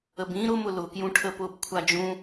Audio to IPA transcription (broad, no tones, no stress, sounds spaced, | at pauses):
ə b ĩ ɾ ʊ m ʊ l ʊ k j ũ ʈʰ ə p ʊ b kʷʰ a d͡ʒ ũ